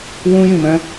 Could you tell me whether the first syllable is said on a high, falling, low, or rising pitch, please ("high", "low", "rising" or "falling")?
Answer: high